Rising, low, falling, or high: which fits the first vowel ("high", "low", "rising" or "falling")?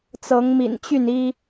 rising